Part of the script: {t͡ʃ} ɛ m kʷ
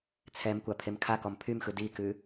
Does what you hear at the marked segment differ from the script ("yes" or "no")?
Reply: yes